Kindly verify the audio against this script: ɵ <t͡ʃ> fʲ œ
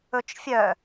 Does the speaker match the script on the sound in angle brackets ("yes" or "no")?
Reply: yes